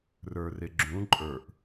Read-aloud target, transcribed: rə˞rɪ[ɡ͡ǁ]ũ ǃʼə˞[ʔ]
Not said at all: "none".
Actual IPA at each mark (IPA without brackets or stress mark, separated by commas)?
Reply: ɡ͡ǁ, ʔ